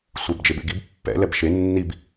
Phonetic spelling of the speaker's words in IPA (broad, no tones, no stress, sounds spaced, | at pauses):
sʷ e b d͡ʒ e b ḛ ɡ i b pː ɛ̰ l ɛ b ʃ e nː i b